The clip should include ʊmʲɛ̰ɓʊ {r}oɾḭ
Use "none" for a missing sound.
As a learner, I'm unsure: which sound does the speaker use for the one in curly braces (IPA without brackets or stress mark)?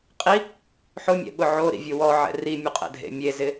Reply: ʕ